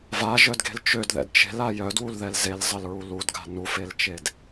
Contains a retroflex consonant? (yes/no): no